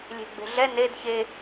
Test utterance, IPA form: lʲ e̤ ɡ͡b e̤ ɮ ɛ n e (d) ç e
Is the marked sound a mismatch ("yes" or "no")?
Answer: no